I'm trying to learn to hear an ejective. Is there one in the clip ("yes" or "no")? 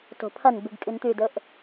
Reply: yes